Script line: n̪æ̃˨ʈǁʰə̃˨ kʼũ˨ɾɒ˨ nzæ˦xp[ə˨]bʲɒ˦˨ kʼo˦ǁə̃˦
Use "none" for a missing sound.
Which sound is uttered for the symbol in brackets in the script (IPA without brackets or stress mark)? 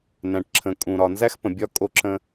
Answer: ə̃˨